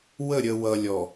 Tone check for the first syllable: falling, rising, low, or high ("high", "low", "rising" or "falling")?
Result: falling